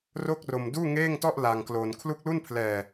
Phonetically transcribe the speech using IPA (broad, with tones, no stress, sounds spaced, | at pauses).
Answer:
r o˥˩ k̚ r o˧ m d uː˥˩ ŋ eː˥˩ ŋ t ɔ˥˩ ʔ l a˧ ŋ k l o˧ n kʰ l u˦˥ k̚ l u˥˩ n pʰ l ɛː˧